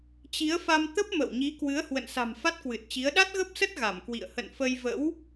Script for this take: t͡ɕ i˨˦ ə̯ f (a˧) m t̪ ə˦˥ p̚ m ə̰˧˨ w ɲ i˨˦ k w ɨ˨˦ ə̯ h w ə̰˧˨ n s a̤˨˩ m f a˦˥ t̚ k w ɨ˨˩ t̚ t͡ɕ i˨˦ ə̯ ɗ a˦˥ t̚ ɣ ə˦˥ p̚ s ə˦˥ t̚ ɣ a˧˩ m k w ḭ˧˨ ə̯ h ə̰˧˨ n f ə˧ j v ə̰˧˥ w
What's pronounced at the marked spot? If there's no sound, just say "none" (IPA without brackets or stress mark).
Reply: a˧